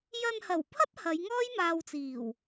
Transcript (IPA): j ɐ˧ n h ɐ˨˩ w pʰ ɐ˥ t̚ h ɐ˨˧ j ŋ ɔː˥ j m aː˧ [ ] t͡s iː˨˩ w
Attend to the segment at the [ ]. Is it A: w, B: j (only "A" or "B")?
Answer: A